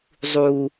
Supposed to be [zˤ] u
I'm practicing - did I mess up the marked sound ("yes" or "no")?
no